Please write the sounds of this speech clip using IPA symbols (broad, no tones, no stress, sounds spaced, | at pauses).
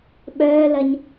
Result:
ɓ œː l ɐ ɲ